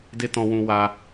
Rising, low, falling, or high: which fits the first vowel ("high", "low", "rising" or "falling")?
high